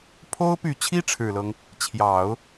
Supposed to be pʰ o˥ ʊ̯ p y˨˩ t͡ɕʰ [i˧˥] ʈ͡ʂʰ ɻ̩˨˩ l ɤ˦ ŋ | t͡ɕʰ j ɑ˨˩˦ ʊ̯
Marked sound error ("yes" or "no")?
yes